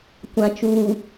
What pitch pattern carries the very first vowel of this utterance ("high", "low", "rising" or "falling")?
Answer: low